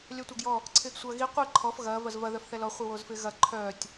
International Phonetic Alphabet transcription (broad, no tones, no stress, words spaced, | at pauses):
lʲœtʷaɡjɔ | ǀʰɪːɡsʷɐːɣi qʷi ǃʰɔf ɣɐː vɐzvɐ ðœfθɛlɔ χʷiwoːzfɪːɣɐ ǃʰœːtʲ